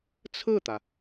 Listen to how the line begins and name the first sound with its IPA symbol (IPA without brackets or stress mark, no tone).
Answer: t͡sʰ